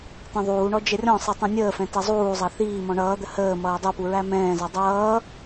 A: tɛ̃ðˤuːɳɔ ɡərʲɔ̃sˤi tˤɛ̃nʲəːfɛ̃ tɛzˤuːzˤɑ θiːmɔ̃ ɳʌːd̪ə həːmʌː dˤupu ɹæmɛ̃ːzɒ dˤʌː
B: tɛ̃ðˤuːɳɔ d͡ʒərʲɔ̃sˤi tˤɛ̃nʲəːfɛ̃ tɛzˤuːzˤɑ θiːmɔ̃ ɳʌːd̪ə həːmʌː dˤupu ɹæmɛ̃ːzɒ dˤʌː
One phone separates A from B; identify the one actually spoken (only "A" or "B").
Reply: B